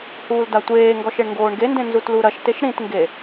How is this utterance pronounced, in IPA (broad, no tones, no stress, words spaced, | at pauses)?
huːldatʷeːŋɡɔʃ eɳŋɡoːɳɡendẽ nzutluɾɐʃteʃ ɾĩtŋɡe